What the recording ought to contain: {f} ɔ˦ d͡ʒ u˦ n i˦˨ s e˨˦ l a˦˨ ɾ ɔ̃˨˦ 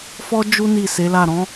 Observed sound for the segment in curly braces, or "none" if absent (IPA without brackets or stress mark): f